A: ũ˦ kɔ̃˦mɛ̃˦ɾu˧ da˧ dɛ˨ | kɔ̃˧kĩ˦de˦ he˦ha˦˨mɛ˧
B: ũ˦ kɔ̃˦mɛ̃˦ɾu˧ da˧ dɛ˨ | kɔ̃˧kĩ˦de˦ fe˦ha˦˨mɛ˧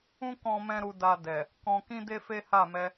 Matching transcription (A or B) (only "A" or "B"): B